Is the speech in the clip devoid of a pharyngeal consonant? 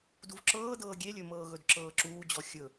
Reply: yes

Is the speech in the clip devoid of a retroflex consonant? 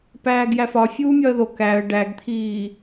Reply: no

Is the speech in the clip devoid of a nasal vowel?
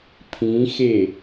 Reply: no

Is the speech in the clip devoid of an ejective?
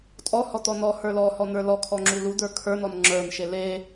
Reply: no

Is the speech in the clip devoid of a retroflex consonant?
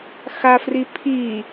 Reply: yes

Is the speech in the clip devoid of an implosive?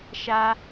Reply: yes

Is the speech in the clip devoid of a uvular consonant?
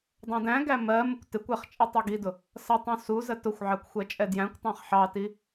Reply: no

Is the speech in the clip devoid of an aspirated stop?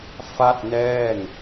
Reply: yes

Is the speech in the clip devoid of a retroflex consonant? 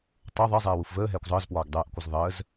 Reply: yes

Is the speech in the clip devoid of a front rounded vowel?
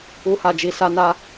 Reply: yes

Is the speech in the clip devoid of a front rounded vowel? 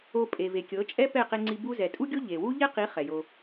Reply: yes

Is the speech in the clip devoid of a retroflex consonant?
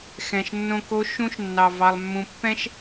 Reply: yes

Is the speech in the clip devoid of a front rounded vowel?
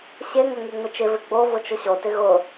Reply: yes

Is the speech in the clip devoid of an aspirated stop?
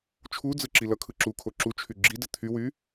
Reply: no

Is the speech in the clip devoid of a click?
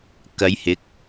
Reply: yes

